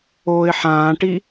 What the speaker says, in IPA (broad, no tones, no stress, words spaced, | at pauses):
oːɪ̯ħãːʈi